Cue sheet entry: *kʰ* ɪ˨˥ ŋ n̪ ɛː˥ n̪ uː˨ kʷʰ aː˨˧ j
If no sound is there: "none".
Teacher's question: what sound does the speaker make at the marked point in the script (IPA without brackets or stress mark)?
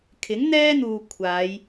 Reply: kʰ